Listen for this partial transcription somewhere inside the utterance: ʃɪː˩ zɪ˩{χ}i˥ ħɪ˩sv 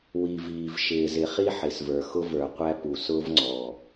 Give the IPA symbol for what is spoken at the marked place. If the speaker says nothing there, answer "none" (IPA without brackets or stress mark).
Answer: χ